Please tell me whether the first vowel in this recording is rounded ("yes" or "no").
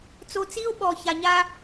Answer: yes